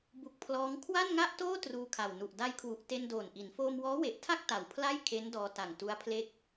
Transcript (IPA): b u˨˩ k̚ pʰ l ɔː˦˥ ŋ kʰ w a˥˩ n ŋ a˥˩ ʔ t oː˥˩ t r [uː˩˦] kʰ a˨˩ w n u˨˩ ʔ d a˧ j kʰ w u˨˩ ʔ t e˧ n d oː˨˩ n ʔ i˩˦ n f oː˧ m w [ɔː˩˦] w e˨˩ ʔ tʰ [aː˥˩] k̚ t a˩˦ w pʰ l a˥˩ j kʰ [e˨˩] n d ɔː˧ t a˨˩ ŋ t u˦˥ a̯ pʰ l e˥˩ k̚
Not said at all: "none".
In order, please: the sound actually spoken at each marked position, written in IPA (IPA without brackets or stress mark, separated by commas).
uː˧, ɔː˦˥, a˥˩, e˦˥